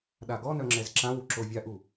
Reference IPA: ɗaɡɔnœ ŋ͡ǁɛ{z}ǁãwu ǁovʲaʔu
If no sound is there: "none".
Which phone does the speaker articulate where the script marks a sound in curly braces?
z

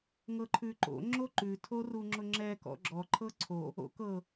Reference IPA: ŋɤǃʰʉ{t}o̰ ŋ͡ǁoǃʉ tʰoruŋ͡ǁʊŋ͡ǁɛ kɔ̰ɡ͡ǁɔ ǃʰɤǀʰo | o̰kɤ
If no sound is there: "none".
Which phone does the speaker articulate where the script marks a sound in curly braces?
ǃ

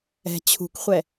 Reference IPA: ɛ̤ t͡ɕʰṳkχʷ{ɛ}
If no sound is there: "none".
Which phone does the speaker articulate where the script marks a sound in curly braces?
ɛ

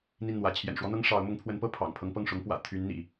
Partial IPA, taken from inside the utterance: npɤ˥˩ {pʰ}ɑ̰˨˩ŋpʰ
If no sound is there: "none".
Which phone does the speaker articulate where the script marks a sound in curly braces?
pʰ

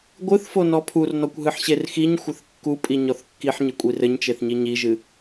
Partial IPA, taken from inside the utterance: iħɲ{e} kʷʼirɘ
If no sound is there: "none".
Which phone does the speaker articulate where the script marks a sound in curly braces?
ɘ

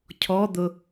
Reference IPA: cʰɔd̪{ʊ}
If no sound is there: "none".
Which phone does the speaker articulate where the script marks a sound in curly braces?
ʊ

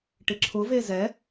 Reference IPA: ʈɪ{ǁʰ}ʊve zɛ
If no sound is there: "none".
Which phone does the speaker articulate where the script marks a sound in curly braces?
ǁʰ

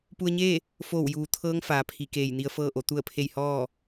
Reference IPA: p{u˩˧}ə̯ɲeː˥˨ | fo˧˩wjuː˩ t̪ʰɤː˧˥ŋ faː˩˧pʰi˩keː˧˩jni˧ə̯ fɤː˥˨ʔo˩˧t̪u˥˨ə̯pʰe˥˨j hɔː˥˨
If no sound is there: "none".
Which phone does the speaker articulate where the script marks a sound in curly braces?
u˧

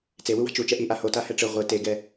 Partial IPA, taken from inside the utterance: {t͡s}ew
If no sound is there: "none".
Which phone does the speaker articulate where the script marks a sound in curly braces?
t͡s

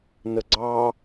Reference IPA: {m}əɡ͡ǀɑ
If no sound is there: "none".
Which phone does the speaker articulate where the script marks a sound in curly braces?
n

